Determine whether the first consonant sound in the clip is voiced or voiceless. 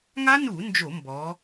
voiced